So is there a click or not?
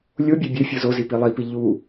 no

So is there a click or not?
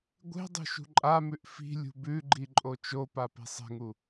yes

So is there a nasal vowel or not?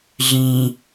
yes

